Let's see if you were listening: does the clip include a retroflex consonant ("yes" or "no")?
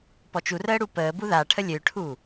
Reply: yes